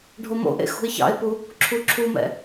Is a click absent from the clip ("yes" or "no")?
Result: no